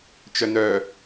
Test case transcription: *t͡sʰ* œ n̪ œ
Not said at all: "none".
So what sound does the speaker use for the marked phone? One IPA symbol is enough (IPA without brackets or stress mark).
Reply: t͡ʃ